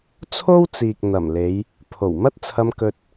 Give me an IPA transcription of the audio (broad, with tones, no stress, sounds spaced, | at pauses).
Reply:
t͡sʰ o˥ w t͡s iː˨ k̚ n̪ ɐ˨˩ m l e˨˧ j | pʰ o˨˩ w m ɐ˥ t̚ t͡sʰ ɐ˧ m k ɵ˧ t̚